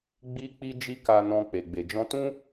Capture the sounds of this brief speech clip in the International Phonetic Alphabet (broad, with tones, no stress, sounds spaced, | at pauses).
ɡ͡b i˦ k͡p i˦ d͡ʒ i˦ k a˧ n ɔ̃˧ k͡p e˨ ɡ͡b e˨ d͡ʒ ɔ̃˧ t ũ˦